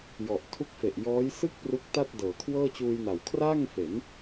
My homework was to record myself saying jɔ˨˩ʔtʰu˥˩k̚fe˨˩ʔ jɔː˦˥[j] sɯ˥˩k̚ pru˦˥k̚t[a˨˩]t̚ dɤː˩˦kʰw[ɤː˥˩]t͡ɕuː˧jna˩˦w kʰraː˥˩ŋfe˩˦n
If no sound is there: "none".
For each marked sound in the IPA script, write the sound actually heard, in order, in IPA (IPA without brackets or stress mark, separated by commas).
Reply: j, a˥˩, ɤː˥˩